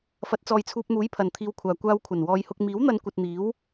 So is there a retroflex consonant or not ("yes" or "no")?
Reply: no